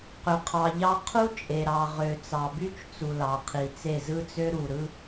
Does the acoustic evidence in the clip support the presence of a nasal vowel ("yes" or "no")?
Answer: no